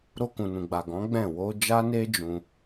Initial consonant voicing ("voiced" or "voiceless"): voiced